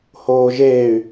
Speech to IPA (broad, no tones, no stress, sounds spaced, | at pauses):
h oː ʒ eː y̯